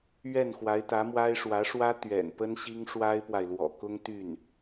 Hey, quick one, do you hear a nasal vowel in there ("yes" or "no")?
no